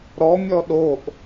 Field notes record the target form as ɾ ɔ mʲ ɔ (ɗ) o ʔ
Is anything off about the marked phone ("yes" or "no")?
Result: no